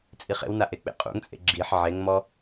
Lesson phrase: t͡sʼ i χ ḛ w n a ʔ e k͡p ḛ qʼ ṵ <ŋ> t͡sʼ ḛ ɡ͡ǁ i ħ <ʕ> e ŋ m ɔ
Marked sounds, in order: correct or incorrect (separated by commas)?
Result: correct, correct